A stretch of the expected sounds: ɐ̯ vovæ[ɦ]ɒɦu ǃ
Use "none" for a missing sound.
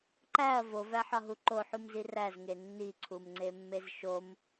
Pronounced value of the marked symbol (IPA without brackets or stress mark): ħ